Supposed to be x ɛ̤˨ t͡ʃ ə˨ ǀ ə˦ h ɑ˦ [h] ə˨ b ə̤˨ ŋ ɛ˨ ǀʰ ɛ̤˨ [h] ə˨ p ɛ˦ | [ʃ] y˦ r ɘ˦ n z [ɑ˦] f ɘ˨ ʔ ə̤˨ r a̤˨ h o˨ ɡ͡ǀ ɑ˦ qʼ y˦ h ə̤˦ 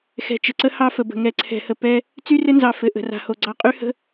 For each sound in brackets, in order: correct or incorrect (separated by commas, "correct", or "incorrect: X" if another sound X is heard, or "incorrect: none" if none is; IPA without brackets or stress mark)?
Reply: incorrect: f, correct, incorrect: t͡s, incorrect: ɑ˨